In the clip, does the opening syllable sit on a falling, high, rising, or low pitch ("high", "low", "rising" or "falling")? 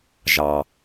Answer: low